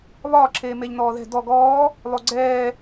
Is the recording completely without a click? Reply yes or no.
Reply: no